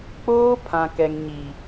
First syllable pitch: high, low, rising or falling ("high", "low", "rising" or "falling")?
high